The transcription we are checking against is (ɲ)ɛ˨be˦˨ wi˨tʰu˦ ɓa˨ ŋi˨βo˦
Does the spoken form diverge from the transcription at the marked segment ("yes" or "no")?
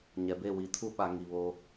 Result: no